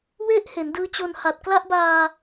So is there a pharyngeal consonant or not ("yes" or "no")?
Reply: no